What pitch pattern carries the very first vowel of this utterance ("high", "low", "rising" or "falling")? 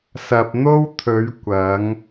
low